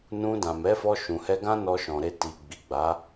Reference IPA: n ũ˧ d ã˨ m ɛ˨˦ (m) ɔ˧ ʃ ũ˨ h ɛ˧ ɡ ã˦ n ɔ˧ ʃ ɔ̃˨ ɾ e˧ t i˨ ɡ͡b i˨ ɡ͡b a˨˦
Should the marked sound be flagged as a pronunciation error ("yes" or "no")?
yes